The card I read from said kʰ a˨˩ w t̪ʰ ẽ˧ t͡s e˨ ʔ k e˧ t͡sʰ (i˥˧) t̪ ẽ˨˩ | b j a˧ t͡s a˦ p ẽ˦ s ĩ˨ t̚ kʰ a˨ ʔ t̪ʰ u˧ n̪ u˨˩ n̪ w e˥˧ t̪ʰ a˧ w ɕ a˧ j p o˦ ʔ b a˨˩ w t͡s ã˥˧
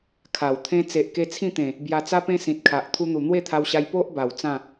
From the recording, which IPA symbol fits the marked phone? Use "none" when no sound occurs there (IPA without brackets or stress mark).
ĩ˥˧